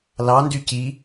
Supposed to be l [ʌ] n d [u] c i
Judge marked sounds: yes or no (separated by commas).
no, no